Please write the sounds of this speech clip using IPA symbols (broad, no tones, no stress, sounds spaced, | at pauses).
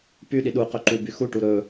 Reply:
p y ɗ i ɗ u q ɵ ǃ u b y x u ʈ u ɾ ɵ